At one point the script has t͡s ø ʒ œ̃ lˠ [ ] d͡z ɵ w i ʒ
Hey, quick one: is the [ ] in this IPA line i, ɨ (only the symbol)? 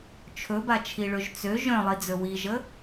i